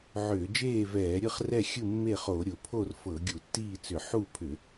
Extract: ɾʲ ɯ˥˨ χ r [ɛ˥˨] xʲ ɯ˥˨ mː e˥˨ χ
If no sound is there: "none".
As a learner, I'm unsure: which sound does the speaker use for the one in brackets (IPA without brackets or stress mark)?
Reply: ɛ˥˨